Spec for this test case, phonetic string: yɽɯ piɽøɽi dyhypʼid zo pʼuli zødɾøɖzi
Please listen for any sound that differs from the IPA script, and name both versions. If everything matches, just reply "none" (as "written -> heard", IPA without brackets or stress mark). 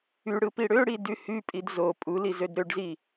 none